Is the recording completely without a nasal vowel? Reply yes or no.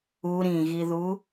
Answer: no